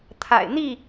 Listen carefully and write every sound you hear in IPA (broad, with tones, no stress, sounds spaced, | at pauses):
t̪ʰ a̰˨˩ ɪ̯ n̪ i˥˨